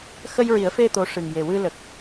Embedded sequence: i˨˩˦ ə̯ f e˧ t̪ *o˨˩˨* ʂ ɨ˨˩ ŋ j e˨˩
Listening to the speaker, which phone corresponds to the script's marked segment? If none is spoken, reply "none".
o˧˥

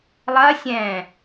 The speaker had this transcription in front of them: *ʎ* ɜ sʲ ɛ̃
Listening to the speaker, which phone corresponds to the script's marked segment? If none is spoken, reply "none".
lˠ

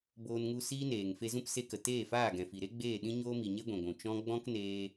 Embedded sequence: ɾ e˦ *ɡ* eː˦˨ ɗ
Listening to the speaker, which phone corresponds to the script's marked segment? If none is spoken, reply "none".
ɡ͡b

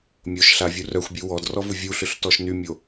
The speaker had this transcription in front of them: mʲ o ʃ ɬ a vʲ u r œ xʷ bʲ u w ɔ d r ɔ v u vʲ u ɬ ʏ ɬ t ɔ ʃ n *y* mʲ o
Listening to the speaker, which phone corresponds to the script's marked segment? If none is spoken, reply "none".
y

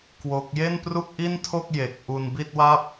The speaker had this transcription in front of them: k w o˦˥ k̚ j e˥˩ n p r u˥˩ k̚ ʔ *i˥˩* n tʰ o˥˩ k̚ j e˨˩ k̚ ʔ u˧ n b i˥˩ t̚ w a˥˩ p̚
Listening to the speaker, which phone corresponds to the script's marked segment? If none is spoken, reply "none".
i˥˩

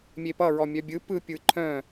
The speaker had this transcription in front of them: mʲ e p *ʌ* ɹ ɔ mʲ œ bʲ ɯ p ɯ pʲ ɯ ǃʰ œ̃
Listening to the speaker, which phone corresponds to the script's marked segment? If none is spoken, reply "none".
ʌ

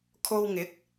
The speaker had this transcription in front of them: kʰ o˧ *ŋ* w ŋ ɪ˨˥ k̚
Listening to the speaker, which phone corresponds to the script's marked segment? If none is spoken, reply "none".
none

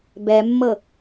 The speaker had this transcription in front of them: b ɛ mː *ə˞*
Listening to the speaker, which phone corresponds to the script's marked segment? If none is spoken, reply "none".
ɤ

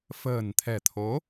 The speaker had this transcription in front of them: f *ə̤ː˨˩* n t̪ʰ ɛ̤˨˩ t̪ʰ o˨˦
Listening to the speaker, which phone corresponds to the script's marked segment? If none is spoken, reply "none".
ə̤ː˨˩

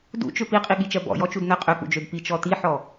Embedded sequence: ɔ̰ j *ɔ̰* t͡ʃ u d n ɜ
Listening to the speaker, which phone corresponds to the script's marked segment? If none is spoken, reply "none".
ɔ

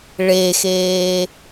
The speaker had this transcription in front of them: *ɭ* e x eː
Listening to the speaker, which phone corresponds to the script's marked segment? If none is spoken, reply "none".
ɭ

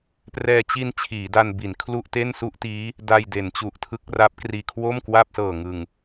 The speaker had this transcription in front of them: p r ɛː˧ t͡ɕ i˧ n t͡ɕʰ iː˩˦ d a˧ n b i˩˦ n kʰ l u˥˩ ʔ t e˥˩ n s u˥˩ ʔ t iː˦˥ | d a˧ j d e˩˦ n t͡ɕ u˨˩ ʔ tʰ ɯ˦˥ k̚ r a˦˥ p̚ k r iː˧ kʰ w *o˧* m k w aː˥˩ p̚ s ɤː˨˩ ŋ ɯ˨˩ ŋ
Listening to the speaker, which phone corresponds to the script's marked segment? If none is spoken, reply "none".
o˥˩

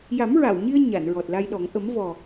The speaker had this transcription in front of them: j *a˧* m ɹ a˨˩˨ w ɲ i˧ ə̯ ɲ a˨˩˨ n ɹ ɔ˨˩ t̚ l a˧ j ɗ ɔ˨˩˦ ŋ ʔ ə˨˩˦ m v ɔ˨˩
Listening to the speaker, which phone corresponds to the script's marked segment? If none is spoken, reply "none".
a˨˩˦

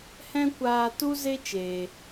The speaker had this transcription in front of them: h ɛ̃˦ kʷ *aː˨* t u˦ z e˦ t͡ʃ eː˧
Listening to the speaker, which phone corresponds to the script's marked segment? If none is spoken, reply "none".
aː˧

